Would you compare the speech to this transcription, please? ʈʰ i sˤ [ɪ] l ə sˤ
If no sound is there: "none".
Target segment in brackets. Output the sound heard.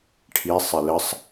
ɪ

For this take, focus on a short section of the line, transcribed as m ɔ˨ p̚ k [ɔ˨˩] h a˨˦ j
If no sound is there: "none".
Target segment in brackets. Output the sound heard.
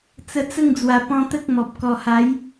ɔ˨˩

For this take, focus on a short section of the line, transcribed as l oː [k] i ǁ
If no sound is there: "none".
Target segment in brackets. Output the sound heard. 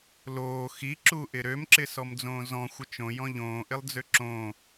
x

